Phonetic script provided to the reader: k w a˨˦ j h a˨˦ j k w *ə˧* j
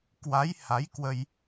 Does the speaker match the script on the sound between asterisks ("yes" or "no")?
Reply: yes